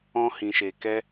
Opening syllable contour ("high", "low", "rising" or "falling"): high